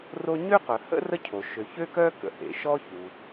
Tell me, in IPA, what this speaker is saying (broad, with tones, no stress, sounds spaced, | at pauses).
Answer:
r o˥ ɲ ø˥ q œ˩ h ə̰˥ r ə˥ cʰ o˩ ʃ ø˩ ç ø˥ k œ˥ k ə̰˩ h ḛ˩ ʃ ɔ˥ ç u˩